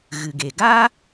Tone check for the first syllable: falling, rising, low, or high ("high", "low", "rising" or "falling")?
low